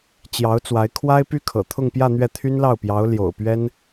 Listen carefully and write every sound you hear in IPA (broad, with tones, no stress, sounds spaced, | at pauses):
t͡ɕ j ɑ˧˥ ʊ̯ t͡s w a˧˥ ɪ̯ kʰ w a˥ ɪ̯ p y˥ kʰ ɤ̰˨˩ t̪ʰ ʊ˥˧ ŋ p j ä˥˧ n̪ ɥ ɛ˥˩ t̪ʰ y˥ n l ɑ˥˩ ʊ̯ p j ɑ˧˥ ʊ̯ l j o̰˨˩ ʊ̯ p ɥ ɛ˥ n